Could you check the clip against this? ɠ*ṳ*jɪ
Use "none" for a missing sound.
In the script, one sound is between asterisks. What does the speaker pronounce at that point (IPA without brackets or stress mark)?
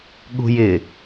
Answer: ṳ